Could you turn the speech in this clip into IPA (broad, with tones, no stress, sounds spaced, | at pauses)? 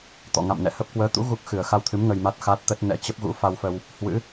t̪ ɔ̰˧˨ ŋ a̰˧˨ m n ɛ̰˧˨ h ə˦˥ p̚ k w əː˨˦ t̪ ṵ˧˥ ɣ u˦˥ k̚ x ɨ˨˩ ə̯ x a˧ w t̪ʰ ɨ˨˦ m ŋ ə˧ j m a˦˥ t̚ x a˦˥ t̚ t̪ ə˦˥ t̚ n ɛ̰˧˥ t͡ɕ ə˦˥ p̚ ɣ ṵ˧˥ f a˧ w f ə˧ w | h w ɨ̰˧˥